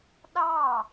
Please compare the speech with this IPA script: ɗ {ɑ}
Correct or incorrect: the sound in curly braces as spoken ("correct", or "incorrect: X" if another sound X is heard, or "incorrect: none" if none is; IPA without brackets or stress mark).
correct